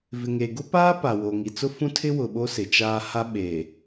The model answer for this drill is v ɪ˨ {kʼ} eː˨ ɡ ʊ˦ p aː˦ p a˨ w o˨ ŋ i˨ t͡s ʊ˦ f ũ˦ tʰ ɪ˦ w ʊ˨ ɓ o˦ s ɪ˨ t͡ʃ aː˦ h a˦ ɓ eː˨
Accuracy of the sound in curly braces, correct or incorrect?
incorrect